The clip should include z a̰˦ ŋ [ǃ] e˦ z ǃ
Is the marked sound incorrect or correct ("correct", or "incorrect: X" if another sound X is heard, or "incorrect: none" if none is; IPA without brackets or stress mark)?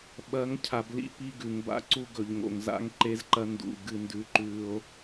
correct